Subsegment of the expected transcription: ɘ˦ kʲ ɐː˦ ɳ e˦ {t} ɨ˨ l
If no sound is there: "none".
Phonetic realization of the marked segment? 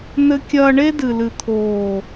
d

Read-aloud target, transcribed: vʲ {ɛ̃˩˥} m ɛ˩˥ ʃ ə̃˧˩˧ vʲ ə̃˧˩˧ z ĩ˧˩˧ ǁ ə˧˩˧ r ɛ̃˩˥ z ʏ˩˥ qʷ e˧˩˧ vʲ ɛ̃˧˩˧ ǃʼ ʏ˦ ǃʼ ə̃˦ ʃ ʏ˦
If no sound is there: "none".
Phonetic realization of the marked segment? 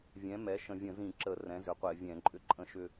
ɛ̃˩˥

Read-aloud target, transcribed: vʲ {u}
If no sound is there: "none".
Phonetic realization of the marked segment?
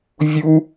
u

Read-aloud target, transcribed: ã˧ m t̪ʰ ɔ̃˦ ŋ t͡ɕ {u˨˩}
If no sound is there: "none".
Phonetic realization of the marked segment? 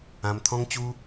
u˦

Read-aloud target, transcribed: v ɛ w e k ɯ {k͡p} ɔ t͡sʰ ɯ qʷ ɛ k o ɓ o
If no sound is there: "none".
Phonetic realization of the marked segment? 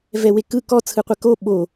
k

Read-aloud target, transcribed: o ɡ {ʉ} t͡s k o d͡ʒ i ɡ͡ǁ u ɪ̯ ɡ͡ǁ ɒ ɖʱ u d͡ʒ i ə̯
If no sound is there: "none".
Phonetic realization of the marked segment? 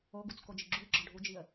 u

